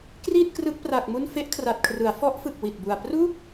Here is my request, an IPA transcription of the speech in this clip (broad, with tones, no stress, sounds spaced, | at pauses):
k r iː˥˩ t̚ k r ɯ˦˥ k̚ p r a˨˩ k̚ m u˥˩ n f e˦˥ ʔ kʰ r a˨˩ t̚ kʰ r ɯ˩˦ a̯ f ɔ˦˥ ʔ f ɯ˨˩ k̚ w i˨˩ t̚ b u˨˩ a̯ p r u˥˩ k̚